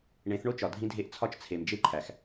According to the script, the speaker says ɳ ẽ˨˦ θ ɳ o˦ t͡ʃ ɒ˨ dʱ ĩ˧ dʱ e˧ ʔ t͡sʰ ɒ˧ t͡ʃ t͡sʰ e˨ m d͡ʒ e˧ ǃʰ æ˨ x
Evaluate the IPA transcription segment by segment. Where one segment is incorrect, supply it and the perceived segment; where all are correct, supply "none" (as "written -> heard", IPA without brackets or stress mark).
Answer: none